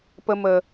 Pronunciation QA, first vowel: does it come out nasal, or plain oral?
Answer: oral